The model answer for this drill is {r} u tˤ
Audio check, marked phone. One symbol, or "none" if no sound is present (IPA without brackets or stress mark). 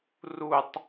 r